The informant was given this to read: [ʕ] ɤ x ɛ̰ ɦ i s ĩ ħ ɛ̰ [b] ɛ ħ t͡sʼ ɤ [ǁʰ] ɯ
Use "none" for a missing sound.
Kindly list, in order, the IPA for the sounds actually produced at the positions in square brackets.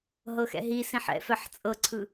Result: ɦ, f, ǀʰ

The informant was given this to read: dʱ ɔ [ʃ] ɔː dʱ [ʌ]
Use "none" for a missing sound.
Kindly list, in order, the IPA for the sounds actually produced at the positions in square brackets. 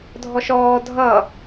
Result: ʃ, ʌ

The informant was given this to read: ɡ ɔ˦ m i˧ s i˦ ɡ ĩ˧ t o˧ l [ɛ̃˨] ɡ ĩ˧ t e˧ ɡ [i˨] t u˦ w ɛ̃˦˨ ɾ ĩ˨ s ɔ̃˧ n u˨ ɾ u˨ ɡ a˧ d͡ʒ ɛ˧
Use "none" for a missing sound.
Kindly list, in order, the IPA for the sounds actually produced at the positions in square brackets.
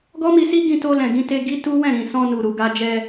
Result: ɛ̃˨, i˦

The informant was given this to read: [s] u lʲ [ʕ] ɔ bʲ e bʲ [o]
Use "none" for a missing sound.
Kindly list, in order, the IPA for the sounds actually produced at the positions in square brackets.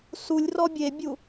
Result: s, r, u

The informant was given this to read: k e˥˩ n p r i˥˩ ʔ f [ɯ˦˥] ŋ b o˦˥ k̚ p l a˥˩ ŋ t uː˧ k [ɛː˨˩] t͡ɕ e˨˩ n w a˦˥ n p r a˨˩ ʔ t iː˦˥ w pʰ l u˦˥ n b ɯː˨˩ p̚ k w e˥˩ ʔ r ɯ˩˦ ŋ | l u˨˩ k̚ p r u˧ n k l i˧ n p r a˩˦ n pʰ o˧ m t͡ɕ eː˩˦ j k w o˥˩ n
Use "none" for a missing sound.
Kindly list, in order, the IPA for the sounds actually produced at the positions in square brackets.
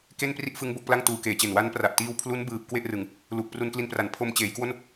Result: ɯ˦˥, eː˨˩

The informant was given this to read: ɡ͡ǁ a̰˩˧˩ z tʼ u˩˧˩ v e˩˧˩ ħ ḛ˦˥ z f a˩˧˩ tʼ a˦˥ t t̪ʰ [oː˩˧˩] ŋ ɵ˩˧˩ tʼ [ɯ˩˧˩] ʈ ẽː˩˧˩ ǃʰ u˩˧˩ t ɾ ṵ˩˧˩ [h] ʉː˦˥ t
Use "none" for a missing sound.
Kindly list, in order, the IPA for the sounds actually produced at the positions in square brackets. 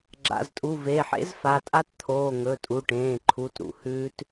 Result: oː˩˧˩, u˩˧˩, h

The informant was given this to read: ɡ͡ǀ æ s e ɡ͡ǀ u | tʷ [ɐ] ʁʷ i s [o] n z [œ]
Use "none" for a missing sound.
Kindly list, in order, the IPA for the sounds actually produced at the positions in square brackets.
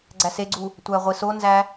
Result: æ, o, æ

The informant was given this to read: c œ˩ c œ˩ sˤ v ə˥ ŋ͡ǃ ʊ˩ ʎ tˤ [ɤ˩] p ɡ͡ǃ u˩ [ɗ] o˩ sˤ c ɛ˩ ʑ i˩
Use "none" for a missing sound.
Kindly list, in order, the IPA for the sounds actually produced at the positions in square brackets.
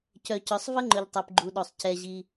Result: o˩, ɗ

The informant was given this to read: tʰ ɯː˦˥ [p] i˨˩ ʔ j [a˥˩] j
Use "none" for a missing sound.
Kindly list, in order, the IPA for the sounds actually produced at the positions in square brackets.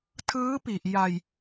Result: p, a˧

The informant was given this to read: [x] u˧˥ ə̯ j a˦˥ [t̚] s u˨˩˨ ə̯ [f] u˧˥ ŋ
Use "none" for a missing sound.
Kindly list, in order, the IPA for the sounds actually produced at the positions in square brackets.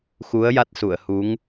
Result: x, t̚, h

